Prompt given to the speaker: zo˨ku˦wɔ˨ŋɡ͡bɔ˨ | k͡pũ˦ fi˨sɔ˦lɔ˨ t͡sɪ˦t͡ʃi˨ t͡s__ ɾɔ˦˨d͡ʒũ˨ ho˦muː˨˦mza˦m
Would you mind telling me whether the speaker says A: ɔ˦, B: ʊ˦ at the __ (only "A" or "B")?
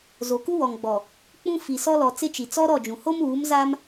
A